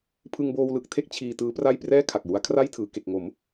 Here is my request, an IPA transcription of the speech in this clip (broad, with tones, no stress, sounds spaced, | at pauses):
pʰ ɯ˧ ŋ b oː˧ w l ɯ˨˩ k̚ tʰ e˥˩ k̚ t͡ɕʰ iː˧ t ɯː˦˥ p r a˥˩ j p r ɛː˥˩ kʰ a˨˩ k̚ j u˦˥ a̯ kʰ r a˥˩ j tʰ ɯː˩˦ k e˨˩ k̚ ŋ o˩˦ m